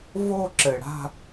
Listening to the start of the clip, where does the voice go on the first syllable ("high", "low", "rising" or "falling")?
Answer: falling